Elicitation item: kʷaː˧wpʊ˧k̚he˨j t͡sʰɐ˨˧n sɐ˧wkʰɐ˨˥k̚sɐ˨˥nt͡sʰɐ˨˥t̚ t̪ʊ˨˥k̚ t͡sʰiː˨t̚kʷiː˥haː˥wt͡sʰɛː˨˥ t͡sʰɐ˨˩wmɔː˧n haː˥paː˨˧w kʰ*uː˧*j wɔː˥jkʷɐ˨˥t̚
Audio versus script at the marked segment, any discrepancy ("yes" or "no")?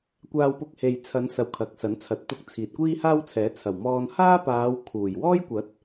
yes